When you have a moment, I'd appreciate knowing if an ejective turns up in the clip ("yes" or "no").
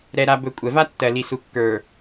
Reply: yes